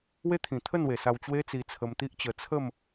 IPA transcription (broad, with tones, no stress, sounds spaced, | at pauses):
w e˦ t̪ʰ ĩ˨˩ t̪ʰ ə˥˧ n w e˨˩ s a˧ w t͡ɕ w e˦ t͡s i˧ t͡sʰ ə˧ m t̪ i˦ ʔ t͡ɕ ə˧ t͡sʰ ə˥˧ m